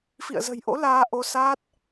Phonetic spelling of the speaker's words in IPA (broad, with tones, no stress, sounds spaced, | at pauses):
f ḭ˧˨ ə̯ z ə̤˨˩ j ʔ o̰˧˥ l aː˧ ʔ o˧ s aː˦˥ t̚